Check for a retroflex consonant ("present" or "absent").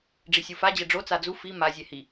present